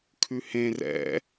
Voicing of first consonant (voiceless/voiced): voiceless